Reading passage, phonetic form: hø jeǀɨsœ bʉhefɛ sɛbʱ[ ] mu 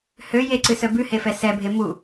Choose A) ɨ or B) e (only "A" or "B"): B